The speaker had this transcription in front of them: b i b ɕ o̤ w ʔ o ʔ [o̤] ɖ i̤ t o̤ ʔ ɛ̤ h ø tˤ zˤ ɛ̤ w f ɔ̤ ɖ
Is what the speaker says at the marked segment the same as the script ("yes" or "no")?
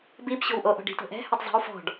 no